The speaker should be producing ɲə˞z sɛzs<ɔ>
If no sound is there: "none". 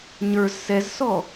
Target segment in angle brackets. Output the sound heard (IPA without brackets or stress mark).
ɔ